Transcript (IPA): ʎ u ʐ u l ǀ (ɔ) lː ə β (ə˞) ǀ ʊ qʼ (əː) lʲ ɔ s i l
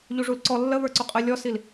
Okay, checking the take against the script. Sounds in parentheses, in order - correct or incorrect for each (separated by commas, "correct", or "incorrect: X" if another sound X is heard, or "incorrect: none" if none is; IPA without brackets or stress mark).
correct, correct, incorrect: ə